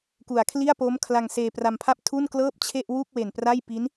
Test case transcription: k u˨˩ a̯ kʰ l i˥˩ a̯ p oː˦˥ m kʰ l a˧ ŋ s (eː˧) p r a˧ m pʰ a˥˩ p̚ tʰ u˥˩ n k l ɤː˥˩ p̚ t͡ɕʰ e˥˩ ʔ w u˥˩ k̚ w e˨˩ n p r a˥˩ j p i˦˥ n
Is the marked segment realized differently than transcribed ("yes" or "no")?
no